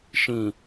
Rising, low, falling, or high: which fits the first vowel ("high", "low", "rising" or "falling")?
low